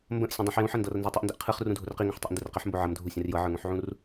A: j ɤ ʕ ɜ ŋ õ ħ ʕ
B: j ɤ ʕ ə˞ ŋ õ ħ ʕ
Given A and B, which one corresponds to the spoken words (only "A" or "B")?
B